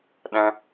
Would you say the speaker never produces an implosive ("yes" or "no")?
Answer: no